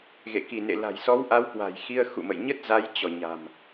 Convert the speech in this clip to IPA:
ɣ ḛ˧˨ k i˧˩ n ḛ˧˨ l a̤˨˩ j s ɔ˨˦ w ʔ a˨˦ w k w a̤˨˩ j x i˧ ə̯ x ṵ˧˨ m ə̰˧˨ j ɲ ə˦˥ t̚ z a˨˦ j t͡ɕ ɔ˧˩ ɲ a̤˨˩ m

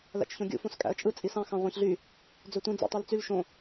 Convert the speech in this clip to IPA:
l æ̰ t͡ʃ ç õ ɡʲ ṵ f õ s kʼ æ̰ ə̯ t͡ʃʼ ɯ t͡sʼ i s ɑ̃ x ɑ̃ ʁʷ ɑ̃ ç ɮ y | d͡z ø tʷ ĩ d͡z ṵ tˤ y l t͡s y l ʃ õ

